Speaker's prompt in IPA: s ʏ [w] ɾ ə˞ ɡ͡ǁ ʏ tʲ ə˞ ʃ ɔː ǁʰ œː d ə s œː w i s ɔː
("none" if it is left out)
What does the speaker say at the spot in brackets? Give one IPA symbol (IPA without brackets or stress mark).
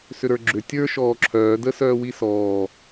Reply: none